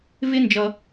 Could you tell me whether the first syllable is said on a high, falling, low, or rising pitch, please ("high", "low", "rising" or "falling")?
high